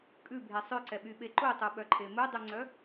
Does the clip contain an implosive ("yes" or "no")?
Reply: yes